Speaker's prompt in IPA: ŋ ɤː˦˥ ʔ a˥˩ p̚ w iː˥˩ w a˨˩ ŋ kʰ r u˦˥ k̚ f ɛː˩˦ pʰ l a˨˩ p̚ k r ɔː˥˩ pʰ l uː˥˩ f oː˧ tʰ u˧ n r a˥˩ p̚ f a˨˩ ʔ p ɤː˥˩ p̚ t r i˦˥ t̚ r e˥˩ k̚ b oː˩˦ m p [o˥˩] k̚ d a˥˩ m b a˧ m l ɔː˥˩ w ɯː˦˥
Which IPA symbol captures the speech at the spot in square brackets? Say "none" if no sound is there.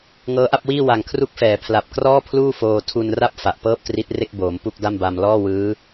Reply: u˥˩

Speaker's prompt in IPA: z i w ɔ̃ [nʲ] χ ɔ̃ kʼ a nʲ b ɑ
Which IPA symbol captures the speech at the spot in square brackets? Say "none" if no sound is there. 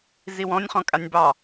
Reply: nʲ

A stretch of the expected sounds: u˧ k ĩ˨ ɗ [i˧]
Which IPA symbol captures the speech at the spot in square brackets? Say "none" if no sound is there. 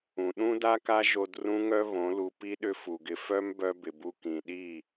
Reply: i˦˨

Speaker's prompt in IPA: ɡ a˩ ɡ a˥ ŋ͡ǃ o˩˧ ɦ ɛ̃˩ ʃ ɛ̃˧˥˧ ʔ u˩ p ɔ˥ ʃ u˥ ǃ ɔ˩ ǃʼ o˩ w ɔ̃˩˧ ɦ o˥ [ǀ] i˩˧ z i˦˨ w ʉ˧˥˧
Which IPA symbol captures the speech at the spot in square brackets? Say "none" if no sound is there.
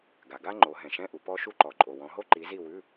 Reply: ǃ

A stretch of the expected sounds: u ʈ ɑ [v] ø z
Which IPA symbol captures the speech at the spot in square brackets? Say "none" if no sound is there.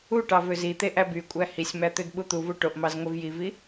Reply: v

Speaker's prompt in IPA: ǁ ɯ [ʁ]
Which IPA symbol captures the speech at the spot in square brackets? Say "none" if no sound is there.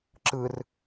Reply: r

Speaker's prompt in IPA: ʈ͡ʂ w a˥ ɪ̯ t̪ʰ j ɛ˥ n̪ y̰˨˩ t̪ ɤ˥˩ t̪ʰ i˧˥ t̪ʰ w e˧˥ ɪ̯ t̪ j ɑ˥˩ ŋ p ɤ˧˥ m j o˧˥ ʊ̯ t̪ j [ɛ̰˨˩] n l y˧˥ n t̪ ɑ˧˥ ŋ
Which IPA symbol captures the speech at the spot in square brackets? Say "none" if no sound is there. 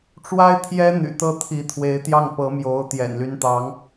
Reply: ɛ̰˨˩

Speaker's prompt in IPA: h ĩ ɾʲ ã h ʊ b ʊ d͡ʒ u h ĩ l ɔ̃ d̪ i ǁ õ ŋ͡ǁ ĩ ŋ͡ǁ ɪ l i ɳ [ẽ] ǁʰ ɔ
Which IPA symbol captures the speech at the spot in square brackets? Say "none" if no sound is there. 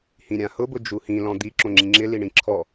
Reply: ĩ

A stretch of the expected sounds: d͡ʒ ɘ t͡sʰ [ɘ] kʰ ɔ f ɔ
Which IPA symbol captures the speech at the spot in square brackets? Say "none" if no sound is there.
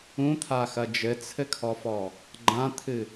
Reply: ɘ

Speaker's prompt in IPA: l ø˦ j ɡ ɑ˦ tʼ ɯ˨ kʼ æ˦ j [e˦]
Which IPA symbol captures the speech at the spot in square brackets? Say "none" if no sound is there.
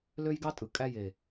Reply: e˨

